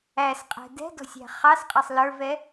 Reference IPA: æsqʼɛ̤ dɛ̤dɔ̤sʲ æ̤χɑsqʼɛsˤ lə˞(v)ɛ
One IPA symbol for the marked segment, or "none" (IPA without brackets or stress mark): v